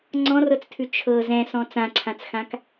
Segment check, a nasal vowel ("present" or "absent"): present